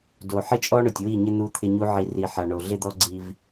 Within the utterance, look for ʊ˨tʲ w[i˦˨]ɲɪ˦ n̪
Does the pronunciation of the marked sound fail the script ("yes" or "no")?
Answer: no